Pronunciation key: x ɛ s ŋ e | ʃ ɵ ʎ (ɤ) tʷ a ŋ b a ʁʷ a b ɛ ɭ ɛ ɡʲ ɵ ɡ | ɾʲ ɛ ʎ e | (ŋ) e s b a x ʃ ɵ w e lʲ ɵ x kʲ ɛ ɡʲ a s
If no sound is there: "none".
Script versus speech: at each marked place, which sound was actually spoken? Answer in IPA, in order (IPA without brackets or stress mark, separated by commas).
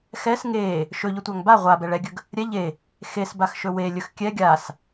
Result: ɵ, x